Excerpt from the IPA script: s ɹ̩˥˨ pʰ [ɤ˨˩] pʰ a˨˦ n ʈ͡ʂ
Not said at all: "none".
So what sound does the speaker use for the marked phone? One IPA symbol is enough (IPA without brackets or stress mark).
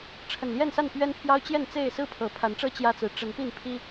ɤ˨˩